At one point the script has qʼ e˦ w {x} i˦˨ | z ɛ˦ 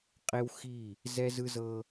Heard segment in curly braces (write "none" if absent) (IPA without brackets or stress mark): x